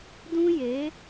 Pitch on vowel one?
high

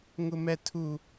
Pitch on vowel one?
low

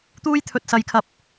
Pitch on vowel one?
high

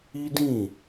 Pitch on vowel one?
high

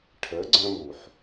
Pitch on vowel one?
rising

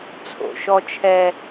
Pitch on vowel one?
low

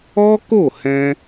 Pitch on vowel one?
high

